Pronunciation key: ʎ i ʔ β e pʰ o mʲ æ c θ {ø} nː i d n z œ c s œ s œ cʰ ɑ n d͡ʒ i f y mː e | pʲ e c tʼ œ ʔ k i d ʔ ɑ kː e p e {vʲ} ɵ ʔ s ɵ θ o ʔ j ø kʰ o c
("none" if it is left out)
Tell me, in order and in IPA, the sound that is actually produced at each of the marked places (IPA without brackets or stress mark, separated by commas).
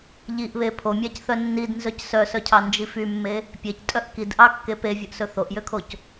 œ, vʲ